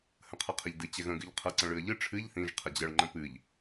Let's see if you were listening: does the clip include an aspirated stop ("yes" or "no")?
yes